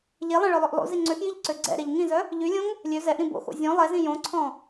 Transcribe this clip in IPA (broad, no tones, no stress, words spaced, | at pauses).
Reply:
ʎelˠẽ ɭœlˠøʔlˠo̰zi ŋ͡ǀøxjiʎ ǀøɡ͡ǀɛ̰ɾeʎ ŋĩzœ | ʎylʲõŋ | lʲø zɛʔɾĩ bo̰xo̰ zʲɔ̃ lˠɛzĩ jõǀʰɔ̃